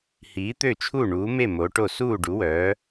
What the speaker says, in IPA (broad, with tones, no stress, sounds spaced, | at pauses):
h iː˨˥ t̪ ø˥˨ t͡ʃʰ u˥˨ ɳ uː˨˥ m e˥˨ m o˨˥ ʈ o˥˨ s uː˥˨ ɖ u˨˥ w œː˨˥